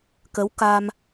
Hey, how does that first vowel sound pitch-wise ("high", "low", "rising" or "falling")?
rising